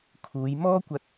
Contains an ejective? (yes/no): no